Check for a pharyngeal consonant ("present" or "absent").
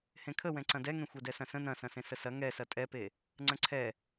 absent